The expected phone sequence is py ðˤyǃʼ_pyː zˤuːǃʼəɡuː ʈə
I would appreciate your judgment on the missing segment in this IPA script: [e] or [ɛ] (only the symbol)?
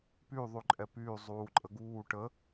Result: ɛ